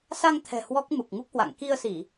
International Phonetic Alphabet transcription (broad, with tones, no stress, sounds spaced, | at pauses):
s a˧ ŋ t̪ʰ ɛ̤˨˩ h w ɔ˦˥ k̚ m u˨˩ k̚ ŋ u˦˥ k̚ h w a̰˧˨ ŋ k i˧ ə̯ s i˧˩˨